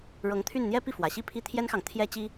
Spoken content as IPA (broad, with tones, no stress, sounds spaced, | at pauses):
ɻ ɤ˧˥ ŋ t̪ʰ y˥˩ n n̪ j ɛ˥ p i˥˩ f w ä˨˩ ɕ i˥˧ pʰ i˥˩ t̪ʰ j ɛ˥ n x ɑ˨ ŋ t̪ʰ j ɛ˥ t͡ɕ i˥